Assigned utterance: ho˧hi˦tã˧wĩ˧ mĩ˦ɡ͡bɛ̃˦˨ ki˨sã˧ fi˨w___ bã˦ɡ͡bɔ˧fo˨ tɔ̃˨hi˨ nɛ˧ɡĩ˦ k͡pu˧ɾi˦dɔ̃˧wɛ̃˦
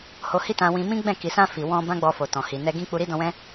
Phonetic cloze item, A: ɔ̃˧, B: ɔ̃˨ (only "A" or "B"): A